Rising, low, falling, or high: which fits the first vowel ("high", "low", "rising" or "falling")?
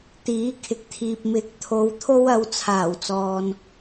rising